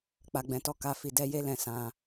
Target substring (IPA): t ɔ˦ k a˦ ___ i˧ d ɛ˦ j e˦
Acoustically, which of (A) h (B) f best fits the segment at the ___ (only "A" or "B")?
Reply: B